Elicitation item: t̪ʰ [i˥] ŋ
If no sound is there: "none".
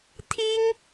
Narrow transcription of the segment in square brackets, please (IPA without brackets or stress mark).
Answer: i˥